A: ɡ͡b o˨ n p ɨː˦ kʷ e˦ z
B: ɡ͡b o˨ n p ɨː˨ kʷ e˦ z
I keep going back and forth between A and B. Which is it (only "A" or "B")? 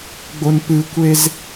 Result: B